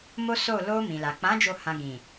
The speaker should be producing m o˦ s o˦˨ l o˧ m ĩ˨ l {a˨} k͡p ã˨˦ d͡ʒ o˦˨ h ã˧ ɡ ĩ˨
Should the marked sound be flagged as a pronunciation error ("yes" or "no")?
no